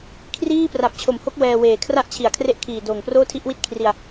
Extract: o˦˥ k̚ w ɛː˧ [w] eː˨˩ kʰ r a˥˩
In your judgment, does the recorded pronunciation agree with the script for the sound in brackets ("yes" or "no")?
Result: yes